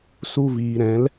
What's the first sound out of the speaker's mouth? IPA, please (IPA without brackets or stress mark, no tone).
s